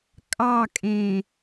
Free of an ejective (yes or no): no